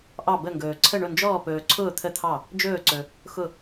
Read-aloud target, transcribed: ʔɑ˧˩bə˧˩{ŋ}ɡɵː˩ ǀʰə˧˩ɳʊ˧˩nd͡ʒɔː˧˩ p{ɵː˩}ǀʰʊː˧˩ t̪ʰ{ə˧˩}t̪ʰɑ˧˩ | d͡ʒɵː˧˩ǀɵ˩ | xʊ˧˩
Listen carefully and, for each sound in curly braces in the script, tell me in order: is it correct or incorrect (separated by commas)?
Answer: correct, correct, correct